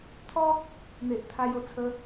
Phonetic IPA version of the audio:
t̪ʰ ɔ˦ | n̪ e˨ ʔ t̪ʰ a˧ j o˨˩ t͡sʰ ə˨˦

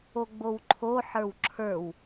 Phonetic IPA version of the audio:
o ɡ͡b o w ǃʰ o ħ ə˞ w ǁʰ ə˞ w

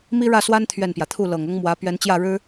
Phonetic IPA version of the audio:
m i˥ ɻ ä˥˩ s w a˥ n t̪ʰ ɥ ɛ˥˩ n p j ä˩ t̪ʰ u˥˩ l ɤ˨˩ ŋ ɤ˥ ŋ m w ä˧˥ p ɥ ɛ˧˥ n t͡ɕ j ä˥˩ ɻ ɻ̩˥

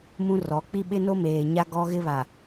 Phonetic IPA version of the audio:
m ũ˦ r ɔ˨˦ k͡p i˦ ɓ ɪ˦ n o˦ m eː˨ ɲ a˦ ɡ ɔ˦ ɣ ɪ˦ β a˨

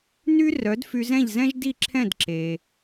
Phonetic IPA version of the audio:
n y˥ r œ˩˥ d f y˧ z ɛ̃˥˩ ʎ z ɛ̃˥ ʒ d i˥˩ ǁʰ ɛ̃˥˩ d ǁ e˩

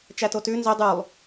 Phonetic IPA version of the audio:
t͡ʃ æ t o t ʉ n z ɵ dˤ ʉ lˠ

